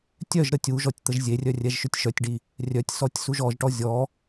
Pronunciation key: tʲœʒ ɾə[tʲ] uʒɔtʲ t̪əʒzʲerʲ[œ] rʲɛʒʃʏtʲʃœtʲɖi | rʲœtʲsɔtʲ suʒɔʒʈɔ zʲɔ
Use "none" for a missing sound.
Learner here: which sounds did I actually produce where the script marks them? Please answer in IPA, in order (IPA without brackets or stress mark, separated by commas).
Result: tʲ, œ